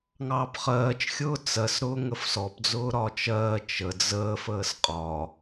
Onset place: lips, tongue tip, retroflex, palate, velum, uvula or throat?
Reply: velum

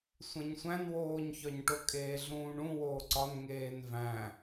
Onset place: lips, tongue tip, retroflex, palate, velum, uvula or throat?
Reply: tongue tip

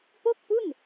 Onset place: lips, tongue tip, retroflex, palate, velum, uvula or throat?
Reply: lips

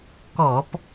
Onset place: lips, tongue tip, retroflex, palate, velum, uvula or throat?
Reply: velum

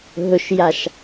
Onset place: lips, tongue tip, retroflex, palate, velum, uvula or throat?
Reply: throat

